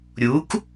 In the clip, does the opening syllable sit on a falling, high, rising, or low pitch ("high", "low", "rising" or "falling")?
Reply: rising